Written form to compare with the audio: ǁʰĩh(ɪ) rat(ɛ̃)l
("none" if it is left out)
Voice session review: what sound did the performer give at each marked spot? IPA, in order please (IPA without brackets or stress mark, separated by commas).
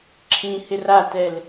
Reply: ɪ, ɛ